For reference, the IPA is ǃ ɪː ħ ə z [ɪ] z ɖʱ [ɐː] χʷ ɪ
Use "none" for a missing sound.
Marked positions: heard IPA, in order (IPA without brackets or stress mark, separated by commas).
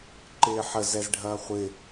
ɛ, ɐː